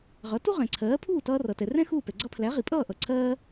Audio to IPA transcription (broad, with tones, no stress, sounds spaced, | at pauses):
ʁ ʌ˩˥ t u˥ ʁ ɛ̃˩ ǀʰ ɜː˩˥ pʰ uː˥˩ t ʌː˧ r ʌ˩ t ɛ˩ r ɛ̃˥ x uː˥˩ p ɛ˩ ɡ͡ǀ ʌ˧ pʰ l æ˩˥ ʁ i˩ pʼ ʌː˥˩ ʔ ʌ˩ ǀʰ ɜː˥